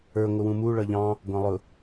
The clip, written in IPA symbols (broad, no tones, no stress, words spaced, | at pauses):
ə˞ ŋʷɪwũmu ɭʌʎɑ̃ | ɡʷɑ̃lˠʊ